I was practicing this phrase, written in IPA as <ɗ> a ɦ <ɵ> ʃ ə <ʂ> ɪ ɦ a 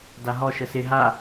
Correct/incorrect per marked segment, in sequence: incorrect, incorrect, incorrect

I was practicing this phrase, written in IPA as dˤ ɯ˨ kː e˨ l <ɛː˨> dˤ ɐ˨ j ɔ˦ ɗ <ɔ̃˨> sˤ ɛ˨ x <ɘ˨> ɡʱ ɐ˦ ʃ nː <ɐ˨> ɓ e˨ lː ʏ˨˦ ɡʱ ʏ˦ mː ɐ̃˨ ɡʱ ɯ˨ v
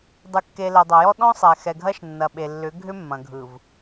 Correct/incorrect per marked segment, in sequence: incorrect, incorrect, incorrect, correct

